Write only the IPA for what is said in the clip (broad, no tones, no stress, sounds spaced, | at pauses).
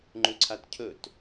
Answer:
ŋ͡ǃ ʉ ǀʰ a t cʰ ɵ t